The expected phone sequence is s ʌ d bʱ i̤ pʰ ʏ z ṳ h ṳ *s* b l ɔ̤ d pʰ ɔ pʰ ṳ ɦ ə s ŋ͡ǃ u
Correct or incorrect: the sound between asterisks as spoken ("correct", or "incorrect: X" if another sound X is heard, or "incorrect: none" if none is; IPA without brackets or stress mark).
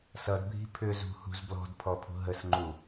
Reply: incorrect: z